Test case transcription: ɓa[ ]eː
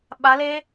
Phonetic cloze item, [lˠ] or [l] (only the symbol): l